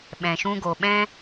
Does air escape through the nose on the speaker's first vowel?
yes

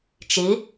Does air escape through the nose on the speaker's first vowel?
no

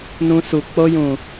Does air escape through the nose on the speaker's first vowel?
yes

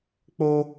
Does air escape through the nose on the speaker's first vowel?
no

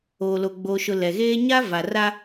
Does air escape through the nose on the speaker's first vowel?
no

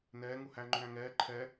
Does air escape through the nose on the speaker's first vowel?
no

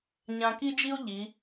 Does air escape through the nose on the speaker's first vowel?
yes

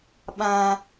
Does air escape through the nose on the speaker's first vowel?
yes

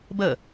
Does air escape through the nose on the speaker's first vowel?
no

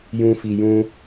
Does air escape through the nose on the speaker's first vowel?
yes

